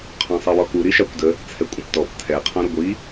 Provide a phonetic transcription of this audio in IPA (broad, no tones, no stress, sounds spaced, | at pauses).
qʰ ɔ̃ sˤ ɜ w ɔ k u ɾ i ʃ ɑ kʷ d ə | t͡sʰ ɛ kʷʼ ə̃ p t ɔ p tʰ ɛ qʰ ɔ̃ ɾ ʊ ɡʷ i